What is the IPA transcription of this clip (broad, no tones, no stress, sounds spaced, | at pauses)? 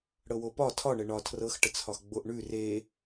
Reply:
ɽ ɤ w o p ɒ tʰ ɒ ɳ ə ɳ ɒ tʰ r ɤ x ʈ ə t͡sʰ ɒ x ɡ͡b o ʔ ɳ ʉ r e